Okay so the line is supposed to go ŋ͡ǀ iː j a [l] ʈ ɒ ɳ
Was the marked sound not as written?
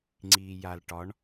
no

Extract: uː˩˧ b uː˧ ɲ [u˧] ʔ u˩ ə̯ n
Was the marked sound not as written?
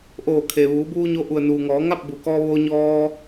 yes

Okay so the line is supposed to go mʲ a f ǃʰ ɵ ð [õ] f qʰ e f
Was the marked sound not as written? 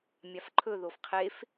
yes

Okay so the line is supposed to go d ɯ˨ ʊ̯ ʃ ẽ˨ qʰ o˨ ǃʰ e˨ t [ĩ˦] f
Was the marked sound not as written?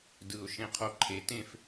yes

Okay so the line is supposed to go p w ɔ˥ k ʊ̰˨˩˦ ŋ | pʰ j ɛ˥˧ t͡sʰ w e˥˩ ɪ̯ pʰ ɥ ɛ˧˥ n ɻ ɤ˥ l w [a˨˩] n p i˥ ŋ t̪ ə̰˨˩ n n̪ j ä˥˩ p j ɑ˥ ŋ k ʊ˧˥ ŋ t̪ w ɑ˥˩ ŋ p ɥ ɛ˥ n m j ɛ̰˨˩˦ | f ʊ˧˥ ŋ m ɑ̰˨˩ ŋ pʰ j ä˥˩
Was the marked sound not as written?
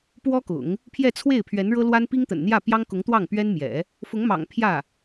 yes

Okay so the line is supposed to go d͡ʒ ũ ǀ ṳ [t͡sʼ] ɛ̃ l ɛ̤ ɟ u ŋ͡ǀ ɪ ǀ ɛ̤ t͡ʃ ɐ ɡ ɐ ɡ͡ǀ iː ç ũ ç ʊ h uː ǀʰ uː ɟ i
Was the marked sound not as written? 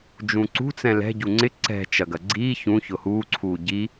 yes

